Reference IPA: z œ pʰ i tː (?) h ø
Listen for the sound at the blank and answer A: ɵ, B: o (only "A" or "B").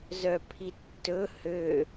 A